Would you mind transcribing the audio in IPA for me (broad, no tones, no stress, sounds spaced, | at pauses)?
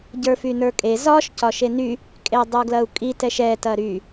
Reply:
ɟ ə˞ f y n ə˞ kʼ e z ɒ ʃ c ɒ ʃ e n y | kʼ e dˤ u ɡ l ɐ u̯ kʼ i t ɛ ʃ ɛ t ɐ ɾ y